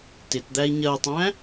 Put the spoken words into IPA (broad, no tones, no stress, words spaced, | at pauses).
tɪtd̪æi̯ ɲɜtˤæ̃